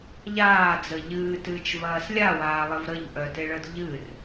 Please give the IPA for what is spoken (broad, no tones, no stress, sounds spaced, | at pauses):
ʎ aː d͡z ə ʎ ɨː t ɨː t͡ʃ v ɐː s lʲ a w aː lˠ ɘ v ɾ ə ʎ ʔ œ t e ɭ ə d ʎ ɨ r